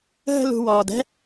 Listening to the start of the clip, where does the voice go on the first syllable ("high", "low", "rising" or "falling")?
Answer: high